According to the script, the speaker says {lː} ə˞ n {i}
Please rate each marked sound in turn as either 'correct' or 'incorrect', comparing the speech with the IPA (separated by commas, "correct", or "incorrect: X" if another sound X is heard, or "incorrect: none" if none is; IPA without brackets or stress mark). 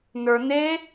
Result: incorrect: n, incorrect: e